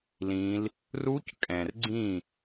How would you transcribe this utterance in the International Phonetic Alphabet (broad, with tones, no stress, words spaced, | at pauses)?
lĩ˦˥l | ru˦˥ckʼɛ̃˨rɡ͡ǀĩ˦˨